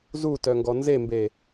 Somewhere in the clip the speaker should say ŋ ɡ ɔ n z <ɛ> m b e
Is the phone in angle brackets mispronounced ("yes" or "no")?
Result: yes